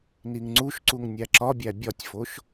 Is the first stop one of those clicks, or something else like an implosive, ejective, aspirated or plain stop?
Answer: click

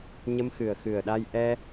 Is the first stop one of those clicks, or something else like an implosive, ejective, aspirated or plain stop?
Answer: implosive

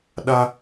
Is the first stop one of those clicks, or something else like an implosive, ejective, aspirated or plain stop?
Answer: implosive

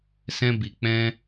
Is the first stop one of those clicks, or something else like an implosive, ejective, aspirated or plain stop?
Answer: plain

